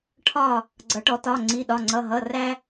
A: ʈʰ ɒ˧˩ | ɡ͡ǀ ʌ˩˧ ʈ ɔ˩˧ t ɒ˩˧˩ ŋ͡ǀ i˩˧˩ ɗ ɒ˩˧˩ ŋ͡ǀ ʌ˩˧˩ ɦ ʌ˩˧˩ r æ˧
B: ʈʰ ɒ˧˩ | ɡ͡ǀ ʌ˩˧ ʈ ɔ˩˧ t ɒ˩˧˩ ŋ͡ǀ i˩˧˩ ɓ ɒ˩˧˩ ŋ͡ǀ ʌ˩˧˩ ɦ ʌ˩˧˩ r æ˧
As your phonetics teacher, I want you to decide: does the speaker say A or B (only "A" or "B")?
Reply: A